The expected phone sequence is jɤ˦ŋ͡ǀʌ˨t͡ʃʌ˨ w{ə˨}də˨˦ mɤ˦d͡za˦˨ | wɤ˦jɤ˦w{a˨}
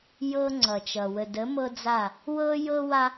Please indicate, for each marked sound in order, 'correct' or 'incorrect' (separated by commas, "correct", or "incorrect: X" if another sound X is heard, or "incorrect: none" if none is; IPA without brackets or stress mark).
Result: correct, incorrect: a˦